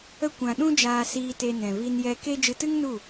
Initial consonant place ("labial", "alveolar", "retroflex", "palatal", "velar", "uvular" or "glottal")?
velar